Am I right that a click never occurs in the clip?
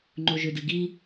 no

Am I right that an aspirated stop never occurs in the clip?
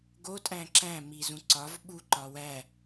yes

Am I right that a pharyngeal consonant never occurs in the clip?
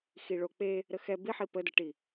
no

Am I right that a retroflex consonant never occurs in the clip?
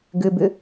yes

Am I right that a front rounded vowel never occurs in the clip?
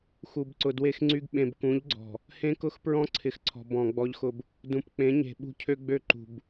no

